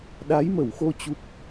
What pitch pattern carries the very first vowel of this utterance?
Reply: rising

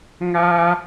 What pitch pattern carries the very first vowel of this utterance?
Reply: high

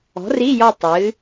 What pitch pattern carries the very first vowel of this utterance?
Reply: rising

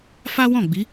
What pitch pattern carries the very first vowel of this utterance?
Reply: high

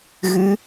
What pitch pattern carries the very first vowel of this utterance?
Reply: rising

